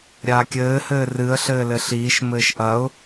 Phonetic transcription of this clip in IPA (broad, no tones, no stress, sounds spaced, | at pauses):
ɾʲ aː kʲ ɘː h ɘː r ɨ ə̯ ɬ ɘː l ɘ ɬ iː ʃ m ɘː ʃ ʔ ɐ ʊ̯